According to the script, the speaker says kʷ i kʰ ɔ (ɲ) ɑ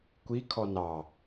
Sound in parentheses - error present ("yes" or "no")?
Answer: yes